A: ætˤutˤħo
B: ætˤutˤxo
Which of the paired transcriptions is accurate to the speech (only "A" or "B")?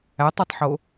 A